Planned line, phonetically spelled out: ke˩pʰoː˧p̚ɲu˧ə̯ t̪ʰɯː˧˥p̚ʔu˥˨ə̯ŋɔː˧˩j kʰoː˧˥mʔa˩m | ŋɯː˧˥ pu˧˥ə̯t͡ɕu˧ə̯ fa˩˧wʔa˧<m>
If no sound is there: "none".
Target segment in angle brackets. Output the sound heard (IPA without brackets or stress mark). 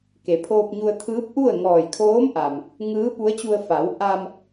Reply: m